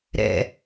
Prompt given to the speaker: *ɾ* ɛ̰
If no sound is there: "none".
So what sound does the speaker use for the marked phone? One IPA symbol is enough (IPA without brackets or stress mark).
ɾ